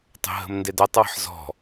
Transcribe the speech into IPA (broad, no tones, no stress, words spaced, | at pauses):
tˤə̤ɦə̤mndedɐtˤ wə̤ħzɔ̤